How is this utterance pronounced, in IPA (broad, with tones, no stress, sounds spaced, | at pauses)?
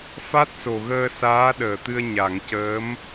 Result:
f a˦˥ t̚ s o˨˩ ɣ əː˧ s aː˧˥ ɗ əː˨˩˨ t̪ ɨ˧ ə̯ ɲ a˨˩˨ ŋ c əː˧˥ m